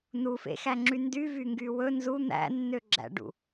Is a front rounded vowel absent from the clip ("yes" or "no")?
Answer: no